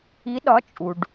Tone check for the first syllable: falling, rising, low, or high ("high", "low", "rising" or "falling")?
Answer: rising